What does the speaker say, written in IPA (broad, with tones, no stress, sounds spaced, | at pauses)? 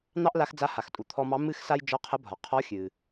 n̪ ɑ˥ ʔ l a˧˥ x d͡z a˧˥ h a˩ x tʼ u˩ t̪ʰ ɔ˧ m ɑ˧˥ m ɨ˥ x s a˥ j d͡ʒ ɒ˧˥ qʰ ə˧˥ bʱ ɒ˩ qʰ ɔ˧˥ xʲ ɨ˩